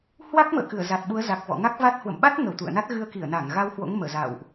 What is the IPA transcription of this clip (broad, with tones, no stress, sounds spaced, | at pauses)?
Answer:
h w a˦˥ k̚ m ə̰ː˧˨ k ɨ˧˩ ə̯ z a˨˩ t̚ ɓ u˨˦ ə̯ z a˨˩ k̚ v ɔ̰˧˨ ŋ a˦˥ k̚ v a˦˥ t̚ h w ə̰˧˨ m ɓ a˦˥ t̚ ŋ ə˧˩ w t̪ ṵ˧˨ ə̯ n a˦˥ t̚ ɣ ɨ˧ ə̯ k i˧˩ ə̯ n a˧˩ ŋ ɣ a˧ w h w o̰˧˥ ŋ m əː˧˩ z a̰˧˨ w ʔ